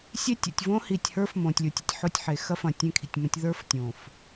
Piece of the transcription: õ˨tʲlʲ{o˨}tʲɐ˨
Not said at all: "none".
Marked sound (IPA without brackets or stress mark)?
o˨